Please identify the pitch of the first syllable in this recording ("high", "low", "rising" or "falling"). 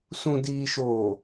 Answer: low